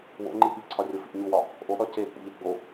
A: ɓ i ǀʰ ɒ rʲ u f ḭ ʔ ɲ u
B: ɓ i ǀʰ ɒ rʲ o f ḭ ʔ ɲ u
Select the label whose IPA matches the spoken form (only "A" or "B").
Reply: B